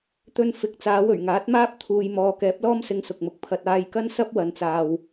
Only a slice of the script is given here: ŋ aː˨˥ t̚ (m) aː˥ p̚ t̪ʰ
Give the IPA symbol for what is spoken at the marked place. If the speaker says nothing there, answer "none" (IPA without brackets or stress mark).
m